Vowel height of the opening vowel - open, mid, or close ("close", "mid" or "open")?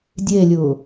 mid